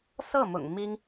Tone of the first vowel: falling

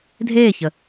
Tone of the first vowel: falling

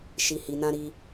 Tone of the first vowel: low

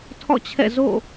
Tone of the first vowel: falling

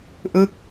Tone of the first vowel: falling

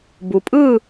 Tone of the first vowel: low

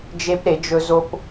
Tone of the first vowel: high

